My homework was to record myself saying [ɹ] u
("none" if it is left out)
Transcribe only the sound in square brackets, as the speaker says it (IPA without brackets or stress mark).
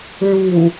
ɹ